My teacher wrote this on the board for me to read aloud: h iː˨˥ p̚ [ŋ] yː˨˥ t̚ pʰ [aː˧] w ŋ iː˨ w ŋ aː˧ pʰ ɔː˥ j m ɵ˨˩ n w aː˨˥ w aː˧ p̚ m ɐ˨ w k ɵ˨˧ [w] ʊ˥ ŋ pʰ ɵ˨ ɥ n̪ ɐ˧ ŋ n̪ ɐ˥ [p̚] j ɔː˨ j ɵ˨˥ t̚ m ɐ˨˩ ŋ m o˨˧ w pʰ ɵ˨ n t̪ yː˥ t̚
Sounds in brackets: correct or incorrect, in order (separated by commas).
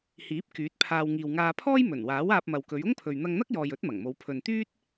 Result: incorrect, correct, incorrect, incorrect